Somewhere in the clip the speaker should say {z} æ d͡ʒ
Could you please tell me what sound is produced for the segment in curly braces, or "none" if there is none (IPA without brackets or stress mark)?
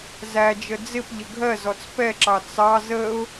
z